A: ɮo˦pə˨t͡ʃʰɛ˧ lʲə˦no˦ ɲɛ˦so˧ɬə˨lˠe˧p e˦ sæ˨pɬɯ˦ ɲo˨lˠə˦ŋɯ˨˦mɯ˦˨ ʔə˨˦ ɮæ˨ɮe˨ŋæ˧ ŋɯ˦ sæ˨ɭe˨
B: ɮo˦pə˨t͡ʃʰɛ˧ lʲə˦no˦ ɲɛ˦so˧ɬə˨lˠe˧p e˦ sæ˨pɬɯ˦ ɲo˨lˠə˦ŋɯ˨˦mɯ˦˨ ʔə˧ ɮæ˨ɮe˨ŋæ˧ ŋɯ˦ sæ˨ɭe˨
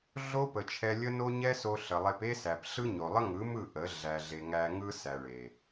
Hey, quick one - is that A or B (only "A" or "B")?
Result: A